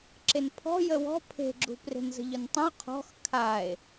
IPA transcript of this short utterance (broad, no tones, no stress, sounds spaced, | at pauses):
ǁ e n pʰ ɔ̤ j ə w ɔ̤ pʰ e̤ ɡ͡ǁ ṳ p r e̤ n z ə̤ ʎ ʊ n tˤ ə̃ o̯ qʰ ɔ̤ x kʰ a e̯